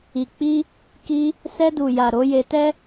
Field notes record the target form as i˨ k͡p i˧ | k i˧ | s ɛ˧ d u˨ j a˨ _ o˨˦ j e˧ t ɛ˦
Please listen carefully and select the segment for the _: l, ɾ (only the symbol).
ɾ